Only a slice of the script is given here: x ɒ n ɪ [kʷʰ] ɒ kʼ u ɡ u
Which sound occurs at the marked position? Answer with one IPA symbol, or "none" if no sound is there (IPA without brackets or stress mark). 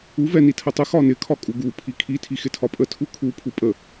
kʰ